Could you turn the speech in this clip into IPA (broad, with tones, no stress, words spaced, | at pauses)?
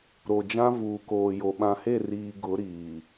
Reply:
ɾo˨d͡ʒã˦ vuː˨koː˨jo˨ ɓã˨he˦˨ riː˨ ɡʊ˨˦ɾiː˨